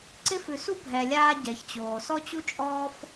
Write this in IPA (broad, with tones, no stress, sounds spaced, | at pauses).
ǀ ɪ˧ f ʉ˩ s u˥ bʱ ɛ˩ lʲ aː˧ ɟ ɛ˩ ç t͡ɕ oː˩ s ɔ˥ t͡ɕ u˥ t͡ʃʼ ɔː˥ f